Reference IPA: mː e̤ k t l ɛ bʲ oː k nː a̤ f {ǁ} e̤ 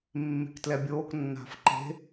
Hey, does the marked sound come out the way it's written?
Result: no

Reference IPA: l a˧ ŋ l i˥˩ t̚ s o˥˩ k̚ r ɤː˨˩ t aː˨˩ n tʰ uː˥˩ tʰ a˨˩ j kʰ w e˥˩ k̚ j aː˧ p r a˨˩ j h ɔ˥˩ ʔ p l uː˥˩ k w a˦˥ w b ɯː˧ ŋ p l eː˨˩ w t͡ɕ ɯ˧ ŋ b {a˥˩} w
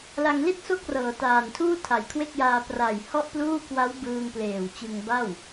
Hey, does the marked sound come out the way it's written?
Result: yes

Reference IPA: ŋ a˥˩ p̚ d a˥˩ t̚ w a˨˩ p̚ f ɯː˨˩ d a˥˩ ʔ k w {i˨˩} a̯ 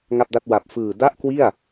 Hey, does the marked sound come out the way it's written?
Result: no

